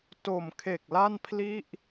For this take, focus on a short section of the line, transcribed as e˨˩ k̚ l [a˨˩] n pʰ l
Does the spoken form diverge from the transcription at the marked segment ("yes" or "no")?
yes